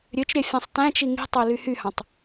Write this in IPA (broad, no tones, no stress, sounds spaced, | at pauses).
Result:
ɾʲ ø t͡ʃ ɾʲ æ fʲ ɑ̃ sˤ t æ̃ t͡ʃ i ŋ i̤ tˤ ø l y h y h ɑ̃ tˤ